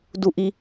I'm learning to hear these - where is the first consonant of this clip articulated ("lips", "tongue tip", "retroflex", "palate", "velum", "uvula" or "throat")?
tongue tip